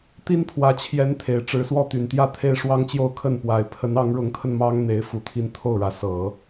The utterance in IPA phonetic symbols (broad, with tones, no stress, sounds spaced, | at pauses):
t̪ i˥ n pʰ w ä˧˥ t͡ɕʰ j ɛ˧˥ n t̪ʰ e˨˩ ɪ̯ ʈ͡ʂ ɻ̩˧˥ s w ɔ˥˩ t̪ y˨˩ n t̪ j ä˥˩ t̪ʰ e˥ ɪ̯ ʂ w ɑ˥ ŋ t͡ɕ j o˥˧ ʊ̯ kʰ ə˥˩ n p w a˧˥ ɪ̯ pʰ ə˧˥ n ɑ˧˥ ŋ ɻ ʊ˧˥ ŋ t̪ʰ ə˧ n m ɑ˥ ŋ n̪ e˧˥ ɪ̯ f u˨˩ t̪ʰ i˧˥ n t̪ʰ o˥˩ ʊ̯ ɻ ä˧˥ s ɤ˨˩˦